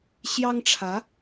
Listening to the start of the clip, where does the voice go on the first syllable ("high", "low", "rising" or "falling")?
high